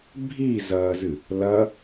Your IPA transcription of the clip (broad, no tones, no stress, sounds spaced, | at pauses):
bʱ i z ɐː z ɨ | l ɐ